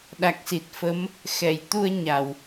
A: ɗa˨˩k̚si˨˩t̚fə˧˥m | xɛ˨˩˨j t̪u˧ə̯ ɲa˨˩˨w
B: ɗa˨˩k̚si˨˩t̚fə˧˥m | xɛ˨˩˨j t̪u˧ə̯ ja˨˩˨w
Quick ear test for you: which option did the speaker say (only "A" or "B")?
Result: A